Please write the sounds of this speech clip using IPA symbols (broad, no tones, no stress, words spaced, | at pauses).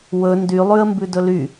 wɵ ndylˠʉə̯mbʉ dɵly